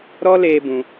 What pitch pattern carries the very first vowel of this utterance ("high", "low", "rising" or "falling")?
high